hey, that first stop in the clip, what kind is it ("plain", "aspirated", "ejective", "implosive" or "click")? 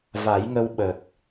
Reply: implosive